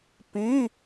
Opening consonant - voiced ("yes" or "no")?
no